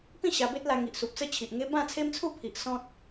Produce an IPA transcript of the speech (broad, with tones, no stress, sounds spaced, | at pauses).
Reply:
p ĩ˥˧ ɕ a˧ b e˦ t̚ l a˧ ŋ i˨ ʔ s u˨ p̚ t͡s ə˦ t͡ɕʰ i˨ ʔ ŋ e˦ b ã˥˧ t͡sʰ e˦ m t͡sʰ u˥˧ pʰ i˨ ʔ s ɔ̃˦ t̚